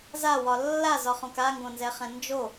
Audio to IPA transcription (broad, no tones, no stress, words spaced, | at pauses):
zawɒ lːazɒχõk aŋɡõnzɛχɛ̃ nd͡ʒo